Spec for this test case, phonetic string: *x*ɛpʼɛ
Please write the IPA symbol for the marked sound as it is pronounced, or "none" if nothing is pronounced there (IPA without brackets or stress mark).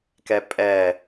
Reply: k